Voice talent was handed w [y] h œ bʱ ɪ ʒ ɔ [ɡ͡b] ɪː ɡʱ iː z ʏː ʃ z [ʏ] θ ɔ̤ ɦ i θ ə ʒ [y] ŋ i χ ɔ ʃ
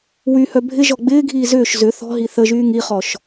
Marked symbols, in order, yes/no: yes, yes, yes, no

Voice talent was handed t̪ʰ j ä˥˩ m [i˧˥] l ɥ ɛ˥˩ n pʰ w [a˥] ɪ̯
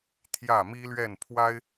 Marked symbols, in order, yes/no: no, yes

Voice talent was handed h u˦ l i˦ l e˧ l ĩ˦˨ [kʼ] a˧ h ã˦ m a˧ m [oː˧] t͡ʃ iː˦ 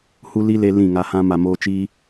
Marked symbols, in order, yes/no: no, no

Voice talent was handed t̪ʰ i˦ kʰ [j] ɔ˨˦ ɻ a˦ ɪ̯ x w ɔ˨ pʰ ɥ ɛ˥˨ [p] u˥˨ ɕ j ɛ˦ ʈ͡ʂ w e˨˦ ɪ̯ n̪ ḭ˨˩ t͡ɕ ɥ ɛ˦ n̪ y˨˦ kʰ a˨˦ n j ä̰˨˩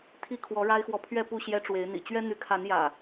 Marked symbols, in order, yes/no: no, yes

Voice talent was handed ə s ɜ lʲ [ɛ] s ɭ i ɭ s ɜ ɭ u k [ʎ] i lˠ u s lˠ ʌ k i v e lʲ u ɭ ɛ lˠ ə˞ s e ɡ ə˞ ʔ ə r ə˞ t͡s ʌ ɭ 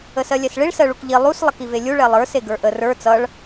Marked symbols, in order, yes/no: yes, yes

